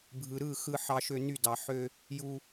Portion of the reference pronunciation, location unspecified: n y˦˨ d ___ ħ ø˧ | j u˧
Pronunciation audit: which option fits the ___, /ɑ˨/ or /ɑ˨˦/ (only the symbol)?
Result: ɑ˨